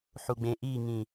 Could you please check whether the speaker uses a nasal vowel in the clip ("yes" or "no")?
yes